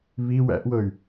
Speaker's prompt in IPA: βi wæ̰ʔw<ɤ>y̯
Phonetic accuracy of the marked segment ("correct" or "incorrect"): correct